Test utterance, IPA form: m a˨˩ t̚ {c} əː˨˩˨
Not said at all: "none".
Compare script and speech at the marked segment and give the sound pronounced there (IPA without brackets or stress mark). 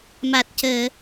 c